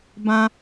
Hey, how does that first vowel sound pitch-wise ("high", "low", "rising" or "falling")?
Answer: high